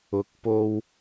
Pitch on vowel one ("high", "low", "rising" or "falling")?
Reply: low